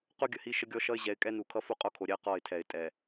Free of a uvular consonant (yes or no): no